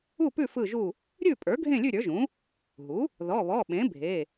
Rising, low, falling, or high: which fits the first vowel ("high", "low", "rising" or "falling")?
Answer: falling